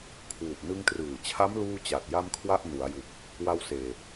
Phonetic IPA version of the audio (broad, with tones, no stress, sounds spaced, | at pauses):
kʰ w u˨˩ ʔ n ɯ˧ ŋ t r ɯː˨˩ t͡ɕʰ a˦˥ m l uː˥˩ t͡ɕ a˨˩ t̚ j a˥˩ m kʰ w a˥˩ ʔ n u˩˦ a̯ j u˨˩ k̚ | w a˧ w s eː˨˩